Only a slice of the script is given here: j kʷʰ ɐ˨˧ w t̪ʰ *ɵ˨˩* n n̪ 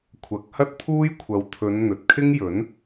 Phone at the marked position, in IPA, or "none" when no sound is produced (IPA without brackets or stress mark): ɵ˨˧